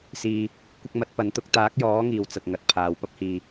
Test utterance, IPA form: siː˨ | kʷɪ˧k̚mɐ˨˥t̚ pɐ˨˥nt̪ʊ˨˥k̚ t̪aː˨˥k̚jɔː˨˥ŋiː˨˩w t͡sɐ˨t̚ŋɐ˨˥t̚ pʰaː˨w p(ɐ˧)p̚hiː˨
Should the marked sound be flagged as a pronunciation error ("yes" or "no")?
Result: no